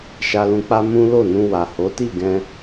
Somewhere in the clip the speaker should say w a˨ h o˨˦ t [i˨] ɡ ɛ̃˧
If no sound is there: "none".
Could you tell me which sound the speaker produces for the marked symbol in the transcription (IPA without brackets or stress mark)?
i˦˨